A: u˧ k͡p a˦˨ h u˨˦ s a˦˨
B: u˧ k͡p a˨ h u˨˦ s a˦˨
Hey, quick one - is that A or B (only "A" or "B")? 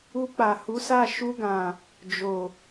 B